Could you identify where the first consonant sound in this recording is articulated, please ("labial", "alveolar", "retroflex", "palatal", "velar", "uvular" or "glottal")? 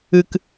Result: velar